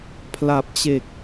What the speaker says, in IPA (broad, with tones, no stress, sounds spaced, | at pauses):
pʰ l a˨˩ p̚ t͡ɕ e˨˩ k̚